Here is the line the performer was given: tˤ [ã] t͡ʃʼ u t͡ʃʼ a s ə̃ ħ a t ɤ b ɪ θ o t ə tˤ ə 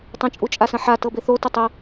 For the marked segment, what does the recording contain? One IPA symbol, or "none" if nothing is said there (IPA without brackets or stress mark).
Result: ə̃